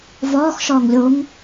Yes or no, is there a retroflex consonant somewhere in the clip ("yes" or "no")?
no